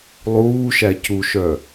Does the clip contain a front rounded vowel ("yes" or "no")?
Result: yes